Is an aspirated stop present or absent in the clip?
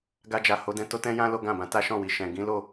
absent